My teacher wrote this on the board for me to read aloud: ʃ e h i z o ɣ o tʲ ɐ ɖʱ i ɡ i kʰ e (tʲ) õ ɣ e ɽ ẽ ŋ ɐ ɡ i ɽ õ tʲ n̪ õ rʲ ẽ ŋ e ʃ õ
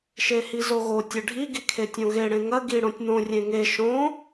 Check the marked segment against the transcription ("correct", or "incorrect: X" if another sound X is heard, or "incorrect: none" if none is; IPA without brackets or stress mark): correct